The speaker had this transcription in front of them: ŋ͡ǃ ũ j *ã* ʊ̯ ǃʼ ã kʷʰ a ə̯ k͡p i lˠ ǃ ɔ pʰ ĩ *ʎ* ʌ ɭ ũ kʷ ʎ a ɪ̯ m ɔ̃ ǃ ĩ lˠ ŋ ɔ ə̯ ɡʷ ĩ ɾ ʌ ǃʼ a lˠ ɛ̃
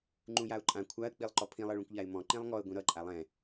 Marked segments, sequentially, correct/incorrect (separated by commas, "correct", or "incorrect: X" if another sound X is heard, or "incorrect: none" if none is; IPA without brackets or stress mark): incorrect: a, incorrect: lˠ